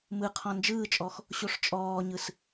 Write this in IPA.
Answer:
m ɯ qʰ ɔ̃ n d͡ʒ ɯː t͡ʃʼ ɔ x | ɕ o ʂ t͡ʃʼ ɔː ɲ ɯ s

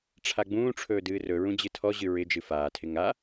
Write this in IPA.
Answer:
ʈ͡ʂʰ a ɡ͡b ũː ʈ͡ʂʰ ɵː d ɨː r ɵ ɹ ũ d͡ʑ ɨ tʰ ɔ ʑ ɨ ɹ ɪ d͡ʒ ɨ f aː tʰ ɪ ŋ a

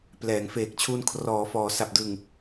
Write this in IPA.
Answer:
p l ɛː˩˦ ŋ f eː˨˩ k̚ t͡ɕʰ u˧ n kʰ r ɔː˩˦ f ɔː˩˦ s a˨˩ p̚ d ɯ˨˩ ŋ

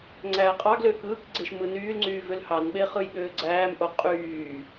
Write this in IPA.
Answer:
ŋ͡ǀ æː qʼ ɑ ɡ l øː k ɯː k ɡ͡ǀ e ʃ m ɯ n yː l ŋ͡ǀ yː v ø l h ɑ n ɓ e χ ɯ j ɠ øː ɡ͡ǀ æː m ʔ o qʼ yː

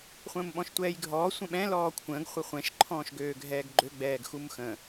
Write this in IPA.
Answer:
χʷ ə̃ː m ɓ ɔ̃ ʃ tʷ ɛː j ɡʱ ɔː sʷ ə̃ ɓ ɛ̃ l ɔː kʷʰ ə̃ː ɡ χʷ ə χʷ ɛ̃ ʃ ǃʰ ɔ̃ː ʃ ɡ øː ɡʱ ɛː ɡ ɡ͡ǃ ø ɡ͡b ɛː ɡ x u m x ə̃

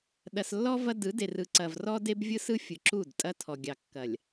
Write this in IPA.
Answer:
ɗ ɐ˨ s lː ɔ˦ v ɐ˦ d ɯ˨˦ d e˨ r ɯ˨ ǀ ɐ˨ v r ɔ˦ d e˦ b vʲ ɯ˦ s ɯ˦ fʲ ɯ˨ ǁ u˦˨ d tʼ ɐ˦ tʰ ɔ˨ ɡʲ ɑ˨ kː ɐ˨ lʲ

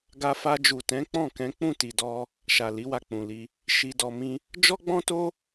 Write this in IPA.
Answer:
ɡ a˧ f a˧ d͡ʒ u˨ t ɛ̃˨˦ k͡p ɔ̃˦˨ k ɛ̃˨˦ k͡p ũ˦˨ t i˨ d ɔ˧ | ʃ a˨ l i˨˦ w a˧ k͡p ũ˨ l i˧ | ʃ i˧ d ɔ˧ m ĩ˦ | d͡ʒ ɔ˦ ɡ͡b ɔ̃˦ t o˦

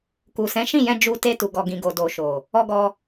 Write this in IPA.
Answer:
k u˨ s ɛ̃˨˦ ʃ ĩ˦˨ j ɛ̃˧ d͡ʒ u˧ t e˧ t u˨ ɡ ɔ˨ ɡ ĩ˨ ɡ o˨ d o˨ ʃ o˨ | ɔ˧ ɡ ɔ˧

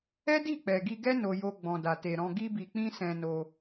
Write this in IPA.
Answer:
ɛ˦ d i˦˨ k͡p ɛ˨ ɡ i˧ ɡ ɛ˦ n o˧ j o˧ ɡ͡b ɔ̃˨ d a˨ t e˨ ɾ ɔ̃˧ ɡ i˦ b i˧ k͡p ĩ˦ s ɛ̃˧ n o˧

